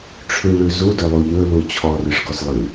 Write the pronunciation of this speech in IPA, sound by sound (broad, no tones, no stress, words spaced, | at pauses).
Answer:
ʈ͡ʂʰʉɭʉ zudɵlˠu ʎɵlu t͡ɕʰɔrʏʂɡɔs lˠɨ